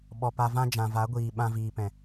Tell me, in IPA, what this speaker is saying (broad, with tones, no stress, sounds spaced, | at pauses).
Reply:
ɓ ɔ˨ p a˧ v ã˦ d͡ʒ ã˨ v a˨˦ ɡʷ iː˨ ɓ ã˧ v iː˨ p ɛ̃˨